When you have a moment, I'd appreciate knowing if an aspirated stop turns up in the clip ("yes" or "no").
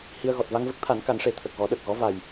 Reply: yes